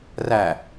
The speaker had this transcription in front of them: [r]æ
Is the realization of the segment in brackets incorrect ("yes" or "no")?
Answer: no